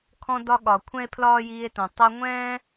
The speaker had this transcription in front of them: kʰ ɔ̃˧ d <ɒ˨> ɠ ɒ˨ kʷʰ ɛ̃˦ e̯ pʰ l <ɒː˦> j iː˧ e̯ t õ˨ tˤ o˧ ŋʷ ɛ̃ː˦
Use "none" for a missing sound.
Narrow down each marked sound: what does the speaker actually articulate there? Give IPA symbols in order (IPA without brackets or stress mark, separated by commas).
ɒ˧, ɒː˦